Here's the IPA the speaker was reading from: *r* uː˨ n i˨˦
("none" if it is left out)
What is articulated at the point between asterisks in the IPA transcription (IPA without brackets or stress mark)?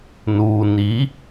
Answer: n